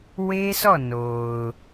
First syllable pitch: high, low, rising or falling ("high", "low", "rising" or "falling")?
high